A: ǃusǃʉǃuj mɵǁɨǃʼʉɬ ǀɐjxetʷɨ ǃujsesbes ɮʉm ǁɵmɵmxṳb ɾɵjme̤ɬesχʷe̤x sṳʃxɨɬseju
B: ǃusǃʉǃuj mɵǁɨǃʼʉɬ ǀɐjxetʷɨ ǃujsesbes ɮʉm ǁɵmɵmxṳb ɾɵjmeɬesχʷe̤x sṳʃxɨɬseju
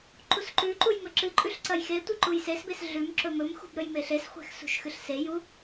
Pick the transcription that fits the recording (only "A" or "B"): B